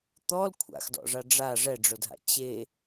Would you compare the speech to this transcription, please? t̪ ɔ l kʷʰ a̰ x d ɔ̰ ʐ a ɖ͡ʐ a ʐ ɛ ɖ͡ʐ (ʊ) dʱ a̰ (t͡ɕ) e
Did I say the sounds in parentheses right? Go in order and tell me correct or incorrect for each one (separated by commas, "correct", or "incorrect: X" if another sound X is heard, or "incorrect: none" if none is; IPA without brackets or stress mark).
correct, correct